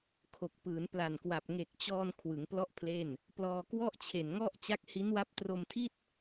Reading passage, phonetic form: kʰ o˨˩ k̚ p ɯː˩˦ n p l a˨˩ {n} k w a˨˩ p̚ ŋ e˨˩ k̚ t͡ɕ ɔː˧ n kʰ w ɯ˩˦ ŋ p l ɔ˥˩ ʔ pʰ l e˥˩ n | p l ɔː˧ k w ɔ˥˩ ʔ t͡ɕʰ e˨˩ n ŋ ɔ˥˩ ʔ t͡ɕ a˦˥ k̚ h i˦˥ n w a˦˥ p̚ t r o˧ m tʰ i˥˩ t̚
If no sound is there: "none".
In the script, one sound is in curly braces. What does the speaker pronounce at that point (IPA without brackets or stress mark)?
n